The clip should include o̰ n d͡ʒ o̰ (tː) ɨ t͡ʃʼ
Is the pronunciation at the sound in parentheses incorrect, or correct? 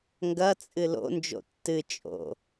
correct